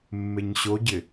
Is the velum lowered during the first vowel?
no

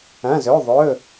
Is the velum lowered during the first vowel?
yes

